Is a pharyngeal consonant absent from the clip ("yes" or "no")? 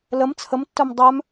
yes